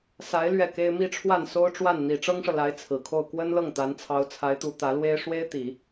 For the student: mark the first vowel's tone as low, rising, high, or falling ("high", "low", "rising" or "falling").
rising